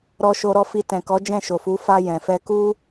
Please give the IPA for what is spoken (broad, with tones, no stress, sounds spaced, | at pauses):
ɾ ɔ˧ ʃ o˧ ɾ ɔ˧ f i˧ t ɛ̃˨ k ɔ˨˦ d͡ʒ ɛ̃˦˨ ʃ o˨ f u˨˦ f a˧ j ɛ̃˨ f ɛ˧ k u˦